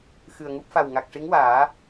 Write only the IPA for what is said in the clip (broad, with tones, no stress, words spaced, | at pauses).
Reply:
xɨ˨˩ə̯ŋu˦˥p̚ fa˨˩w ŋa˨˩k̚ʂi˧˥ŋwaː˨˩˦